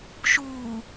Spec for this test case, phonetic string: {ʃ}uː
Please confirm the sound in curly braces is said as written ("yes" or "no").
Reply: yes